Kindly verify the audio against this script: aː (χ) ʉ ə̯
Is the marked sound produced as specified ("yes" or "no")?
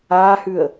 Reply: no